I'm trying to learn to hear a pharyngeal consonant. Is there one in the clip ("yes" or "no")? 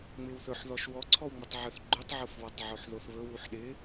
yes